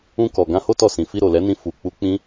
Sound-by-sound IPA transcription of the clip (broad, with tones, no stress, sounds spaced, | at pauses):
ũ˧ k ɔ˨ ɡ ã˧ h o˦ t ɔ˧ s ĩ˨ f i˧ ɾ o˨ l ɛ˨˦ n ĩ˧ f u˧ k͡p u˦ k͡p ĩ˦